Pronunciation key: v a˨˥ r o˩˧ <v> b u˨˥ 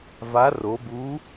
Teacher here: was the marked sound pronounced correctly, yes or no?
no